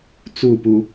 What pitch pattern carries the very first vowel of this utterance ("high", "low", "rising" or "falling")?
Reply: falling